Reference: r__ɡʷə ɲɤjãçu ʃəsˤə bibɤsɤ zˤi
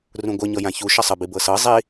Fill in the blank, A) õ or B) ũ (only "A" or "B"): B